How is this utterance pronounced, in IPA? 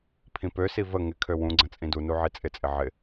pʰ ĩ p ø s i v ə ŋ ɪ kʰ ø w ũ ɡ͡ǀ ə̃ t͡sʼ ĩ d u n u ʕ i t͡sʼ ɪ t͡sʼ ɪ ʕ ɪ

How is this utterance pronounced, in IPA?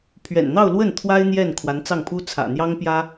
pʰ ɥ ɛ̰˨˩ n n̪ ɑ˥˧ ʊ̯ l w ə˥˩ n t̪ʰ w a˥ ɪ̯ n̪ j ɛ˥˩ n kʰ w a˧˥ n t͡s ɑ˥˩ ŋ pʰ u˥ t͡sʰ ä̰˨˩ n̪ j ɑ˥ ŋ p j ä˥

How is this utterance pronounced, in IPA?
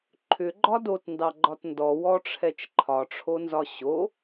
ǃʰ ʏ ɡ͡ǃ ɒ d o t n d ɑ ɡ͡ǃ ɒ t n d ɔ w ɔ ʈ͡ʂʰ ɛ t͡ʃ ǃʰ ɒ ʈ͡ʂʰ o n z ɒ ɕ o

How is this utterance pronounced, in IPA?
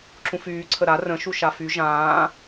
ǁ ũ f yː ǀʰ ə ɾ a r ə̃ ʃ u ʃ a f y ʒ ãː

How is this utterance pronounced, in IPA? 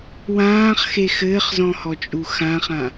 w ãː χ x e x ɘː χ z ɔ̃ h ɔ t͡ʃʼ u x ã χ ã

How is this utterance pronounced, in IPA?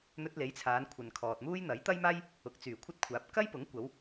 n̪ ɵ˧ t̚ l e˨˥ j t͡sʰ aː˨˧ n kʷʰ ɐ˨ n kʰ ɔː˨ t̚ m uː˥ j n̪ ɐ˨˥ j t̪ ɐ˥ j m aː˥ j | ʊ˨ k̚ t͡s yː˨˩ kʷʰ ɐ˥ t̚ kʷʰ aː˨˥ p̚ k ɐ˥ j p ʊ˨˥ ŋ kʷ ɐ˨˧ w

